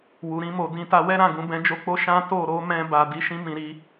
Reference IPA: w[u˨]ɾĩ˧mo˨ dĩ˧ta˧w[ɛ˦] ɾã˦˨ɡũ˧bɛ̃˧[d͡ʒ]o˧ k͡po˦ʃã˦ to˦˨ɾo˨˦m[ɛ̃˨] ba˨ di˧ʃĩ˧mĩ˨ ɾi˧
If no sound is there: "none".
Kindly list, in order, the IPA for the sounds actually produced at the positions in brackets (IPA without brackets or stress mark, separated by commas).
u˨, ɛ˦, d͡ʒ, ɛ̃˧